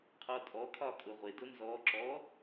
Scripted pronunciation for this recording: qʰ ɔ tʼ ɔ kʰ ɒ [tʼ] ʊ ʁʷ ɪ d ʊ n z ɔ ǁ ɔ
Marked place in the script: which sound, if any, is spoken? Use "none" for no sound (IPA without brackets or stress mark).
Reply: kʼ